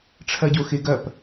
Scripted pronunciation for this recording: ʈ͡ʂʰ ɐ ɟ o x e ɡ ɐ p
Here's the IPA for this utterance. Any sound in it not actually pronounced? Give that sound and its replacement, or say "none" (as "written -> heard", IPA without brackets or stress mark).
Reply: none